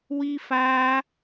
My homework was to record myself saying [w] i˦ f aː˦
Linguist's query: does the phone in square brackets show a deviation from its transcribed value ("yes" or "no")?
no